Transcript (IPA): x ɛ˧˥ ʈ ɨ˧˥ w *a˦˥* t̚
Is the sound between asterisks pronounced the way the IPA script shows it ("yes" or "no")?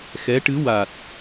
no